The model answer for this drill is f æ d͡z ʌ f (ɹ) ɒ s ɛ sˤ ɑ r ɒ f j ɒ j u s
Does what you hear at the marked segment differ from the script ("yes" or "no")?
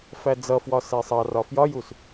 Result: yes